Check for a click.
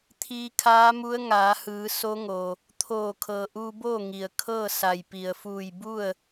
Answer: absent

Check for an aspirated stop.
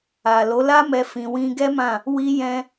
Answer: absent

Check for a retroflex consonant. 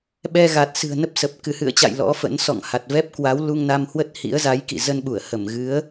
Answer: absent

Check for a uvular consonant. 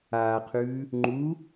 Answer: present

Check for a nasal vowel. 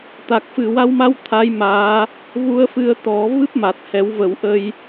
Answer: absent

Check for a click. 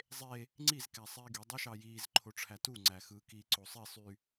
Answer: present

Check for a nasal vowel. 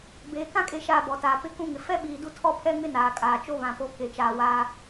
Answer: present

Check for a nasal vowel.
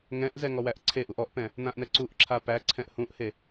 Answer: present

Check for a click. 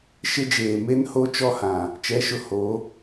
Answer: absent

